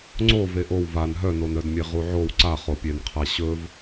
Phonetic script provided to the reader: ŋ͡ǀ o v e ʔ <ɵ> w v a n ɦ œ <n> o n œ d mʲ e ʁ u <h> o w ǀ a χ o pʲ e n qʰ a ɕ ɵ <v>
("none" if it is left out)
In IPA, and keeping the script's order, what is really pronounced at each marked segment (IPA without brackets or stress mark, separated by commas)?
o, n, ʕ, v